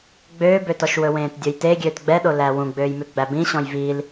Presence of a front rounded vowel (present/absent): present